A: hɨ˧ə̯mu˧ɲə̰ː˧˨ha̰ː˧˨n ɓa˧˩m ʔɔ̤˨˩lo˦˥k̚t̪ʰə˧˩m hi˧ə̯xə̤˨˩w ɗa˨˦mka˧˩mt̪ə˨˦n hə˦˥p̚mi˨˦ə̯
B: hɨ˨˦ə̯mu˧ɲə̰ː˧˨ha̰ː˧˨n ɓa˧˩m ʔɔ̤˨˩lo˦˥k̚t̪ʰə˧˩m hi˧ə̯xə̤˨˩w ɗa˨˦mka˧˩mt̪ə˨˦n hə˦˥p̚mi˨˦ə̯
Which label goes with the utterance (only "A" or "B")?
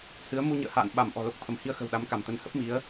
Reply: B